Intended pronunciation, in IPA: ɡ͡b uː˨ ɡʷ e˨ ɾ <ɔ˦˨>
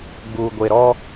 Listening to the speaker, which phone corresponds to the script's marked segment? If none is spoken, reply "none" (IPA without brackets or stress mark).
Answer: ɔ˦